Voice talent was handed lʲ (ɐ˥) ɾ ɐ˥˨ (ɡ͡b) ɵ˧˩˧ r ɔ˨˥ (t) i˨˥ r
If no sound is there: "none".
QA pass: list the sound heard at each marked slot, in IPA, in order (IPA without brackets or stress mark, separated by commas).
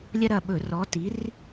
ɐ˥, ɓ, t